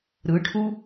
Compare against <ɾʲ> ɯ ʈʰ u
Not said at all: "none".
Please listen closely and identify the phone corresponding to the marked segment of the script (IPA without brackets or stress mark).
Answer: ɾ